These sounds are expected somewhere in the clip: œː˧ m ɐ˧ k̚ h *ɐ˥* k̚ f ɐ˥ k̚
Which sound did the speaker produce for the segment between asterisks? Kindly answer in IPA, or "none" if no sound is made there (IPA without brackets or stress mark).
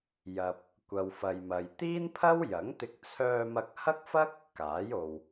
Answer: ɐ˥